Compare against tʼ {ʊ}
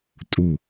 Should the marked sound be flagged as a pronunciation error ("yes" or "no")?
yes